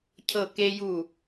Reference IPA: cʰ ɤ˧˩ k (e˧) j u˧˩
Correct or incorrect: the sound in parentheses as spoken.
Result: correct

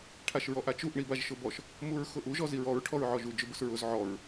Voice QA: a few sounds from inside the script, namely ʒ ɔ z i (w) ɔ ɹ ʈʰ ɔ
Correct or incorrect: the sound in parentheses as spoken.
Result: incorrect: ɹ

